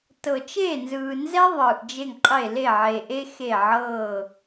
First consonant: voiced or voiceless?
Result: voiceless